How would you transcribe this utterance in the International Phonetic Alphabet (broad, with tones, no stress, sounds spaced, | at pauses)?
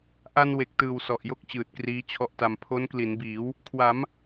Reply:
ʔ a˧ n w e˨˩ k̚ t ɯː˨˩ w s ɔ˨˩ ʔ j o˥˩ k̚ t͡ɕ ɯː˨˩ t̚ k r iː˦˥ t͡ɕʰ ɔ˦˥ ʔ t a˧ m pʰ o˦˥ n k l i˩˦ n b iː˩˦ w | kʰ w a˩˦ m